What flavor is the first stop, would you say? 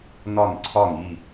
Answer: click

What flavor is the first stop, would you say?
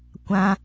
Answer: plain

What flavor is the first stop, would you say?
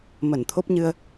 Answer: aspirated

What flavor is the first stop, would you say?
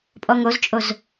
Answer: ejective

